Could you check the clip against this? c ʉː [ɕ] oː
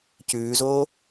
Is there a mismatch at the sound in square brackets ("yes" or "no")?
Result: yes